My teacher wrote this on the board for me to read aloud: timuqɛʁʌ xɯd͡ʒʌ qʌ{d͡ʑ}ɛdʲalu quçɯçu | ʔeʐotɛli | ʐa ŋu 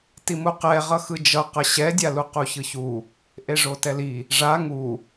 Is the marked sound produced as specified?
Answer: no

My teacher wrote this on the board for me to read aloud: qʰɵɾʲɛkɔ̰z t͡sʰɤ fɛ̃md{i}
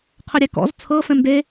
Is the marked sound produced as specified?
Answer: no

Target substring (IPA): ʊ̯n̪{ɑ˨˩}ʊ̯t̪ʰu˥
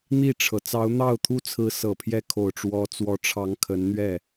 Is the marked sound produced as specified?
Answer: no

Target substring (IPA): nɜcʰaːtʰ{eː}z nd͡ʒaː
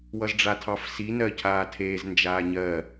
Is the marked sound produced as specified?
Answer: yes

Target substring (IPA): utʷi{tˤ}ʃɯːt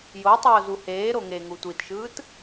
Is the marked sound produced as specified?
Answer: no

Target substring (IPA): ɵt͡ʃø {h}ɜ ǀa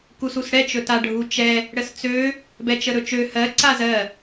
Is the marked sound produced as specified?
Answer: yes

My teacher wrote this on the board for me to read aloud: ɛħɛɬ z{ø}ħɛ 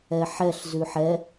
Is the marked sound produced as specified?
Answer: no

